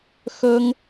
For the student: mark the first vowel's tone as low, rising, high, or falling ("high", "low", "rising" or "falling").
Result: high